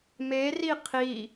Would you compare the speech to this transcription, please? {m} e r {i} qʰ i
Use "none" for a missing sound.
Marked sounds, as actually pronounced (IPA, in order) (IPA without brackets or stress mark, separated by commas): m, i